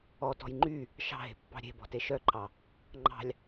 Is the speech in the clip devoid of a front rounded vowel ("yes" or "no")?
no